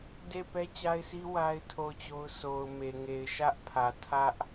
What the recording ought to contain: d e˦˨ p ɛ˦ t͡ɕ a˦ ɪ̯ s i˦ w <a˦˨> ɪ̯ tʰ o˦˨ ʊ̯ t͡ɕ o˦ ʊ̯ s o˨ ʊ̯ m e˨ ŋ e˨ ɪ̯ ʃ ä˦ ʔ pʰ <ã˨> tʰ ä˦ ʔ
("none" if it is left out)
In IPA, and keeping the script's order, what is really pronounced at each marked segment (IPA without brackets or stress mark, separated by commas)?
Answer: a˦, ä˨